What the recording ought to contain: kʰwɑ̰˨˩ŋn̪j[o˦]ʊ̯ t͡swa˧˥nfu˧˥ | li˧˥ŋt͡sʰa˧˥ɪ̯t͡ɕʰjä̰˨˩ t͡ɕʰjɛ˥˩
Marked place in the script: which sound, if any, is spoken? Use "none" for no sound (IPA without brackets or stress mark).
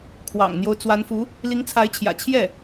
o˦